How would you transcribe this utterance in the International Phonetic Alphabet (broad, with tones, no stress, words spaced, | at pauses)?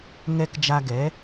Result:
ŋɛ˧k d͡ʒa˧ɡɛ˩˥